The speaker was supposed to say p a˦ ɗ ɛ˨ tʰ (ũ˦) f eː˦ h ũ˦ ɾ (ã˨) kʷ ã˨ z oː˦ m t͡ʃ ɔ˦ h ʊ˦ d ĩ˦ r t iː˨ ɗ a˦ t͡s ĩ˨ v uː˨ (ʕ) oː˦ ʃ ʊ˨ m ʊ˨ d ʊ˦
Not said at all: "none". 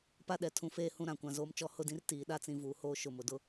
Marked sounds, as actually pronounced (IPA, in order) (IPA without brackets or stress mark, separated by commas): ũ˦, ã˨, h